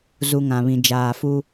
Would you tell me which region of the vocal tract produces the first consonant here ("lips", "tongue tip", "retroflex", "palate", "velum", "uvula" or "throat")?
tongue tip